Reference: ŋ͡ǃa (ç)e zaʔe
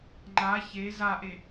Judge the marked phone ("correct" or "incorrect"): correct